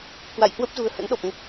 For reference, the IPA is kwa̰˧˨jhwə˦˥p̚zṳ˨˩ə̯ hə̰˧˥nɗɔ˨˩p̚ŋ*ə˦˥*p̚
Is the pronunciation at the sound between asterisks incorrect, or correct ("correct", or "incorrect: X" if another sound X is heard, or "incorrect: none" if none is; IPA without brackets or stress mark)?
correct